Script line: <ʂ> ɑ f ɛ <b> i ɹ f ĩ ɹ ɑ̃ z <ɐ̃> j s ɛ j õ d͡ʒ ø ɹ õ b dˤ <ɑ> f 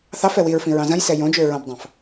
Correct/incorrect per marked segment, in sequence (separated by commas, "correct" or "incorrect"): incorrect, incorrect, correct, incorrect